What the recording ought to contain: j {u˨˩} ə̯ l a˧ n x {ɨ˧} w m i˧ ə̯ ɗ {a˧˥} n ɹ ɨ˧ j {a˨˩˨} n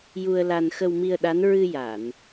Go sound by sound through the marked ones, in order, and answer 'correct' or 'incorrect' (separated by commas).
incorrect, incorrect, correct, correct